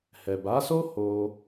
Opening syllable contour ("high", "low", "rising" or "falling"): low